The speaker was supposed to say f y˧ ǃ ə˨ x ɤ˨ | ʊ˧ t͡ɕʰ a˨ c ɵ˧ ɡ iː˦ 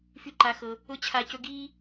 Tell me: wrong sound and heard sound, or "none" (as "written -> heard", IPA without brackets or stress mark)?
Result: ə˨ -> a˨